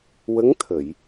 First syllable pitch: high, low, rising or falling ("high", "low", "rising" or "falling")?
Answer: rising